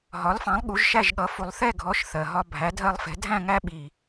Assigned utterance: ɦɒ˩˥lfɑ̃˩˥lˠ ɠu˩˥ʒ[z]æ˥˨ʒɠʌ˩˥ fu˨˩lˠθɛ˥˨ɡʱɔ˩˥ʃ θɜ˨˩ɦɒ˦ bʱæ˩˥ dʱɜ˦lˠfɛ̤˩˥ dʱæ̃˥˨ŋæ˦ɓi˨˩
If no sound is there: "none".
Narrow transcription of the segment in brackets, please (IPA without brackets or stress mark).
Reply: ʃ